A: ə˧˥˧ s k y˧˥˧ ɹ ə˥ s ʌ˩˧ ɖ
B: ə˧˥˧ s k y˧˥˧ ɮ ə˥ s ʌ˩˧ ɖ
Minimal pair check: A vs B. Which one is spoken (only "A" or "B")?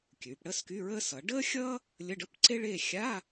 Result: A